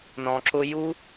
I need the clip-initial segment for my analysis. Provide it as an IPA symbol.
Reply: n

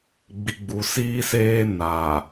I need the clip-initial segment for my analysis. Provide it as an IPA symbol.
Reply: ɡ͡b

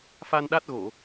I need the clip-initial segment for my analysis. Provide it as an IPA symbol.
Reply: f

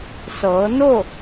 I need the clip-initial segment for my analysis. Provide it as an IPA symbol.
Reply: s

